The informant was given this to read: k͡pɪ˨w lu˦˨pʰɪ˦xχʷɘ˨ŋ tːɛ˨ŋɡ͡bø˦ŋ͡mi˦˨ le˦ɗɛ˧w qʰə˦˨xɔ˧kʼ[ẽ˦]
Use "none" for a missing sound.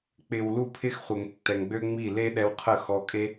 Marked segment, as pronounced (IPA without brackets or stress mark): e˦